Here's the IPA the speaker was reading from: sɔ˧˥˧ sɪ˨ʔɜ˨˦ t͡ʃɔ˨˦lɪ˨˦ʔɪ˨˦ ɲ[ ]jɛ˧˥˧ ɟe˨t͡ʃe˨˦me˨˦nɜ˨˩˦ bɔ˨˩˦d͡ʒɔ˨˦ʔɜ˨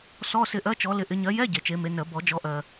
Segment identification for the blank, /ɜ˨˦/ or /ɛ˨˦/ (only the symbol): ɜ˨˦